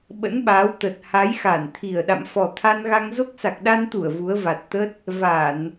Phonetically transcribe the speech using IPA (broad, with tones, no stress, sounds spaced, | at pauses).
ɓ ə̰˧˥ n ɓ aː˨˦ w t̪ ə˨˩ t̚ h a˨˦ j x a˧˩ n t̪ʰ i˨˩ ə̯ ɗ a̰˧˨ m f ɔ˨˩ t̪ʰ a˧ n ɣ a˧ ŋ z o˦˥ k̚ s a˨˩ k̚ ɗ a˧ n t̪ u˧˩ ə̯ v u˨˦ ə̯ v a˨˩ t̚ t̪ ə˦˥ t̚ | v a˧˩˨ n